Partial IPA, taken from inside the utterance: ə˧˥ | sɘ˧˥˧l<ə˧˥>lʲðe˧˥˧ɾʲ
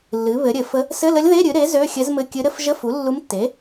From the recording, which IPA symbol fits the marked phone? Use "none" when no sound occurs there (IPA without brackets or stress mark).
ə˧˥